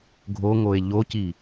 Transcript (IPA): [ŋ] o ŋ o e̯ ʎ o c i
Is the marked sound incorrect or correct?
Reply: incorrect